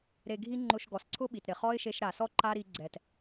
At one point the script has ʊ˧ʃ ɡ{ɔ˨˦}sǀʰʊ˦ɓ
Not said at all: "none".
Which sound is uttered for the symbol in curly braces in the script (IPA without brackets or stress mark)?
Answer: ɔ˨